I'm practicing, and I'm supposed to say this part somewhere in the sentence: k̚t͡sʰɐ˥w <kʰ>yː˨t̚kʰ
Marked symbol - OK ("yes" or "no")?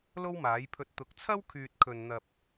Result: yes